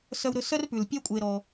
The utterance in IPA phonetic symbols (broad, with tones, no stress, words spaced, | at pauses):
sœ˧wɾɵ˧ sœ˦rpʉ˨lpʲœ˦ kʷʼe˧ɾɔ˧